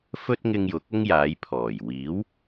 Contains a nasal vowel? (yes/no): no